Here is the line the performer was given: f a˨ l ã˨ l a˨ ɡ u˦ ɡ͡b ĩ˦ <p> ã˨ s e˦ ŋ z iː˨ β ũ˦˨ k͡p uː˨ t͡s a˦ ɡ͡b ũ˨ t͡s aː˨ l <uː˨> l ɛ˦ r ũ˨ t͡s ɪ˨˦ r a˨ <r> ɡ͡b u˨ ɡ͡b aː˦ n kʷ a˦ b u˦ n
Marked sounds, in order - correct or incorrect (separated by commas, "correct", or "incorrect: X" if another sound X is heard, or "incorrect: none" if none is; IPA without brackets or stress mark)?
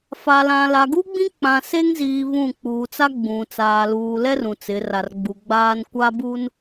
incorrect: k͡p, correct, correct